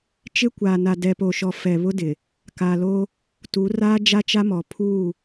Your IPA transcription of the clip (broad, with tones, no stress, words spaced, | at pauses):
t͡ʃɪ˦kʷaː˨ na˨dɛ˨po˨ʃɔ˨ fɛ˨ βʊ˦dɪ˨ | ka˨lo˦ | tu˨˦raː˦ d͡ʒa˦t͡ʃa˦mɔ˨ pʰu˦˨